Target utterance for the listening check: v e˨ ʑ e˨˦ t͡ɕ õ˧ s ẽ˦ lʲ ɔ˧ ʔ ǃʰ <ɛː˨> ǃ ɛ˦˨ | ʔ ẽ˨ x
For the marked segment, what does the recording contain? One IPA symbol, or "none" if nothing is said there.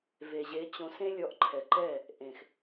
ɛ˨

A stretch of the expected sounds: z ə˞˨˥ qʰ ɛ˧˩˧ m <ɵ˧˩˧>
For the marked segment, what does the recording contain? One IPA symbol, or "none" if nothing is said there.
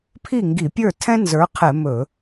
ɵ˧˩˧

